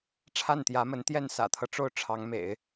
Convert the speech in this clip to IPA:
ʈ͡ʂʰ a˥˩ n t̪ j ä˧˥ m ə˧˥ n t̪ j ɛ˥˩ n s ä̰˨˩ t̪ʰ ɤ˦ ʈ͡ʂ o˥˩ ʊ̯ ʈ͡ʂʰ ɑ˧˥ ŋ m ḛ˨˩˦ ɪ̯

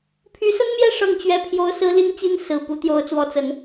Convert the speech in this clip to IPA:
pʰ y˧˥ s ə˥ n m j ɛ˥˧ ʂ ɤ˥˩ ŋ t͡ɕ ɥ ɛ˥ pʰ j o˥ ʊ̯ s ɹ̩˥ l i˥ ŋ t͡ɕ i˥ n s ɹ̩˨˩ p u˧˥ t̪ j o˧˥ ʊ̯ t͡s w ɔ˧˥ t͡s ə˧˥ n

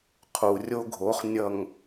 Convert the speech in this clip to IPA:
qʰ u˨ rʲ o˦ ɡʱ o˨˦ χ nʲ ʌ˨ ŋ

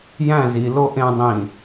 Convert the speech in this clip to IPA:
j æ̃ z i l o ʔ ẽ dˤ ĩ

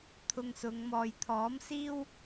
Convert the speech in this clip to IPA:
t̪ʰ ʊ˧ ŋ s ʊ˨˧ ŋ m ɔː˨ j t̪ʰ ɔː˨˥ m s iː˥ w

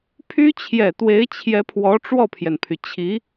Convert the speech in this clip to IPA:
pʰ y˥ t͡ɕʰ j ɛ˨˩ t̪ w e˧˥ ɪ̯ t͡ɕʰ j ɛ˧˥ pʰ w ɔ˧˥ ʈ͡ʂ w ɔ˥˩ pʰ j ɛ˩ n pʰ y˩ t͡ɕʰ i˧˥

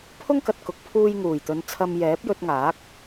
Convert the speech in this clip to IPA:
pʰ ʊ˥ ŋ k ɐ˨ t̚ k ʊ˨˥ k̚ pʰ uː˧ j ŋ uː˨˩ j t̪ ɵ˨˧ n t͡sʰ ɐ˧ m j ɛː˨˥ p̚ j ɵ˧ t̚ ŋ aː˨˥ k̚

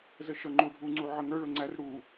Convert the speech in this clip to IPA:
z ə ʃ ʌ ŋ͡ǃ u ɖʱ u ŋ͡ǀ u ʕ ə ŋ ə˞ ɭ ʊ ŋ͡ǀ æ r ɽ u

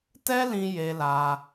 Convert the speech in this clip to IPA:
t ɛ˦ l ĩ˧ j e˧ l a˧

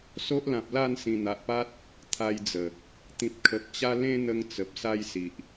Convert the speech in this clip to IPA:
s o˦ ʔ l ã˨ p̚ l a˥˧ n s ĩ˨˩ n̪ a˨ ʔ p a˦ t̚ | t̪ʰ a˧ j d͡z ə˨˩ | t̪ ĩ˨ p̚ kʰ ə˨ p̚ t͡ɕ a˦ l ẽ˦ n̪ ə˧ ŋ t͡s ə˨ p̚ s a˦ j s i˨ ʔ

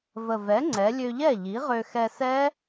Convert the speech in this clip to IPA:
v ə˨˩ v ɛ˩˥ ŋ͡ǀ ɛ˩˧ lʲ ø˧ ʎ ɛ˥˩ ʎ i˩˥ ʁ ø˧ x ɛ˧ s ɛ˦˥

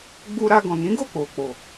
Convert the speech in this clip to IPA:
ɡ͡b u˧ ɾ a˧ ɡ ɔ̃˨ n ĩ˨˦ ɡ o˦˨ k͡p o˨ k͡p o˨

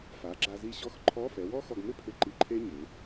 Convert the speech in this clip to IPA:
f a˩˥ ɡ͡ǁ a˧ z i˥ ɕ ɔ˥ x ǃʰ ɔ˧˥˧ f ɛ˩˥ w ɔ˥ x ɔ˧ ɡ m ɪ˥ pʰ ɪ˧ ǃ i˧ ǃʰ e˥ ɲ ɪ˩˧

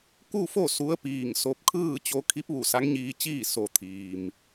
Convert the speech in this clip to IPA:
k u˥˨ f o˥˨ s u˧˥ ə̯ p iː˧˩ ŋ s o˧ p̚ kʰ ɯː˥˨ t͡ɕ o˧ kʰ i˧˥ p̚ ʋ u˧˩ s a˧˥ ŋ ɲ iː˧ t͡ɕ iː˥˨ s o˩˧ t̪ʰ iː˩ m

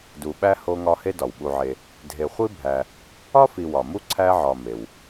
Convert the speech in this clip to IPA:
d u˨ ɓ æ˥ h o˦ ŋ ɒ˦ h e˥ d ɒ˩ w ɓ u˨ ʕ e˨ | dʱ e˨ χʷ i˥ bʱ æ˨ | ɒ˥ f i˨ w ɒ˩ m u˦ ǀʰ æ˦ ʕ ɒ˨ m e˩ w

